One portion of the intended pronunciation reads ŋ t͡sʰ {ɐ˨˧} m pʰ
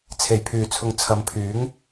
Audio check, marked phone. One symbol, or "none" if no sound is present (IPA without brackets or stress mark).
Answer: ɐ˨˧